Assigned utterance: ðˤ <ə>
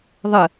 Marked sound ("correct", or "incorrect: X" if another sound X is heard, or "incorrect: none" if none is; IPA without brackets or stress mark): correct